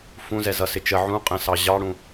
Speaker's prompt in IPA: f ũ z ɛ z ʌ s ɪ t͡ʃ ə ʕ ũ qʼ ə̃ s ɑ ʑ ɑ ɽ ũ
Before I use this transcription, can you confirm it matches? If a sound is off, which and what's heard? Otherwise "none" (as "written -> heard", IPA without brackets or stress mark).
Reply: none